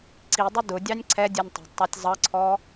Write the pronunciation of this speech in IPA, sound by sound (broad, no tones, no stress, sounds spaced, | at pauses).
ǀ i dˤ ʊ d ʊ dʲ ɑ nʲ ǀʰ ɛ dʲ ɛ nʲ tˤ ɛ̤ d tˤ ɑ tʲ zˤ ʌ ǀʰ ɔ